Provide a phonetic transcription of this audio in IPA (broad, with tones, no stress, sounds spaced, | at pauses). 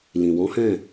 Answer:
l ĩ˨ w ɔ̃˨˦ h ɛ̃˦˨